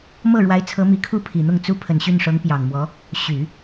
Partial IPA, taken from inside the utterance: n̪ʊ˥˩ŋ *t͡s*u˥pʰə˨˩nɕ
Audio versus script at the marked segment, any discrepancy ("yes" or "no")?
no